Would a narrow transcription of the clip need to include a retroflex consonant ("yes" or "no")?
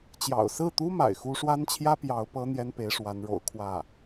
yes